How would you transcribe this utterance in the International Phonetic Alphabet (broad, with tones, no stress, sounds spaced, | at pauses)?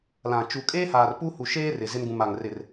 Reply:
l ã˨ t͡ʃ u˨ kʼ eː˦ h aː˨ r p u˦ h u˨ ʃ eː˦ r ɪ˨ z ɪ˦ n ɡ ũ˨ m a˨ ŋ r ɪ˨ r